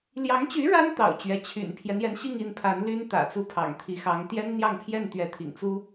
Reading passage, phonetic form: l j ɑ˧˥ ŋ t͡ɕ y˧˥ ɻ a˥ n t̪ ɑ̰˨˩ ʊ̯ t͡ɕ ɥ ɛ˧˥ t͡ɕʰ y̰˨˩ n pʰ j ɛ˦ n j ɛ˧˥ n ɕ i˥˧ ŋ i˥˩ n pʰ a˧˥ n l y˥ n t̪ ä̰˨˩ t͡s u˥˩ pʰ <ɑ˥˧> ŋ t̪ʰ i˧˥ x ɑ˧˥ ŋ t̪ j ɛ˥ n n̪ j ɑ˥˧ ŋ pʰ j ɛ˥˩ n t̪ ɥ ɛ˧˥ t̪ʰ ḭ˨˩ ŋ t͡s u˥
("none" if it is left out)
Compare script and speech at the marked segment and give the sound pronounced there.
ɑ̰˨˩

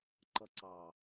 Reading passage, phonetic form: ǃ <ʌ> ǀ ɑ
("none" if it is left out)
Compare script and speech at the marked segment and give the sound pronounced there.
ʌ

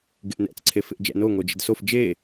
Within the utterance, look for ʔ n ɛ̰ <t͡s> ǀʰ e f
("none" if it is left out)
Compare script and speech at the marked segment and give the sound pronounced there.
t͡s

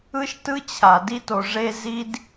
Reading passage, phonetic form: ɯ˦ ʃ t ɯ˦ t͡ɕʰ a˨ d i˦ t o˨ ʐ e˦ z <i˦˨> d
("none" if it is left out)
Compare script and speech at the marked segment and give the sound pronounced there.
i˦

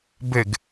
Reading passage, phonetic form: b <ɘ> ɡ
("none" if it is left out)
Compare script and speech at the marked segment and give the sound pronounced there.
ɘ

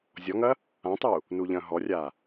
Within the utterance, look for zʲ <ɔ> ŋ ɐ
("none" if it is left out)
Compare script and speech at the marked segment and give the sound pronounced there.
ɔ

